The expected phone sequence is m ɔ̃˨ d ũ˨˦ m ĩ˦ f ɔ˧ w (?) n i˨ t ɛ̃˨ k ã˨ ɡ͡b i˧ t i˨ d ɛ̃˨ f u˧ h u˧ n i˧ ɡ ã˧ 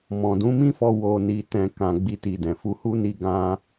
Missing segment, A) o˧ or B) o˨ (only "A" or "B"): B